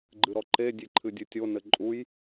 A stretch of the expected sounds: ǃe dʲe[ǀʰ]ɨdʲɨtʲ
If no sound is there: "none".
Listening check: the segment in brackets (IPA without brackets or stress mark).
ǃʰ